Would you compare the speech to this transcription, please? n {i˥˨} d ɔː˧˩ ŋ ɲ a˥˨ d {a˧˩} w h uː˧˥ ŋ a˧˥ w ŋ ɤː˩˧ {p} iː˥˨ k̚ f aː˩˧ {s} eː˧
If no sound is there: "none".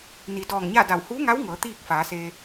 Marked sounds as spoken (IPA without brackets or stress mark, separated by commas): i˩˧, a˧˩, t̪, s